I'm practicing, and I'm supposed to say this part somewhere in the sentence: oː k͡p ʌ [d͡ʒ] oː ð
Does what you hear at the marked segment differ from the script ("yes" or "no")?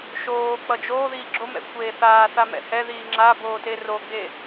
no